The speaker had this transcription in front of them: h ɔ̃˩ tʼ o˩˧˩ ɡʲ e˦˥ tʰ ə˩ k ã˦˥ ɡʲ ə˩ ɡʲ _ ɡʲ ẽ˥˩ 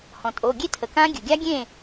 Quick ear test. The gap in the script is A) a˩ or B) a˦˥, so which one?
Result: B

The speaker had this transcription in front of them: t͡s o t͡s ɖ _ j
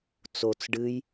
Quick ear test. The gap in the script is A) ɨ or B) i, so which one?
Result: A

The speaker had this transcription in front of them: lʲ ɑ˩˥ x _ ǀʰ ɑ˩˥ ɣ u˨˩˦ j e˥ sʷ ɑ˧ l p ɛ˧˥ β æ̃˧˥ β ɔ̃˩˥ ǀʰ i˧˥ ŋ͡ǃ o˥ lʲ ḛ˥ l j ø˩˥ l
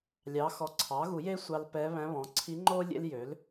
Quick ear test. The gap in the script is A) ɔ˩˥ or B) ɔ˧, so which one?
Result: A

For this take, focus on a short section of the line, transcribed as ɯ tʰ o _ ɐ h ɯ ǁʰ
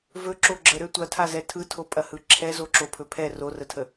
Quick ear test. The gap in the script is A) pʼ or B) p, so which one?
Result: A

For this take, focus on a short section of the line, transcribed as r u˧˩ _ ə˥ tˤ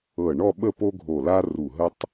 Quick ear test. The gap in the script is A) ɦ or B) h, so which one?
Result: A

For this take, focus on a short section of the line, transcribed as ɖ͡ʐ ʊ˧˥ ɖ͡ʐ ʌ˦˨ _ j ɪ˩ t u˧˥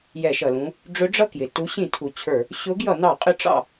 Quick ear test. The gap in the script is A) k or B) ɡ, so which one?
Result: A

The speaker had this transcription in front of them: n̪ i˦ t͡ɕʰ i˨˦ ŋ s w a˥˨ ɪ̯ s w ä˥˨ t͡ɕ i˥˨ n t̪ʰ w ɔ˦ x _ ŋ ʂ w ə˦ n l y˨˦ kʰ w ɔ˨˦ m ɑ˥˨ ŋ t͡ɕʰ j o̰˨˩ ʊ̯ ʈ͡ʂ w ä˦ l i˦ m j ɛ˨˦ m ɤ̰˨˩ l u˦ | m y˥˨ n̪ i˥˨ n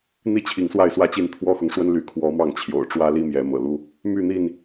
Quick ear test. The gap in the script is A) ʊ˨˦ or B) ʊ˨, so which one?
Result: B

